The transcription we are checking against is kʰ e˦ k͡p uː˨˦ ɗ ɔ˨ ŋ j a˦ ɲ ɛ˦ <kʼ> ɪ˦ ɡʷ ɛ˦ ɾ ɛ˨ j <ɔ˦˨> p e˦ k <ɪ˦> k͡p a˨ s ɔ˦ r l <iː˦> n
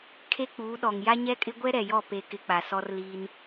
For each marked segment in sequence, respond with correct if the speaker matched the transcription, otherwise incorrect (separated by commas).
correct, correct, correct, correct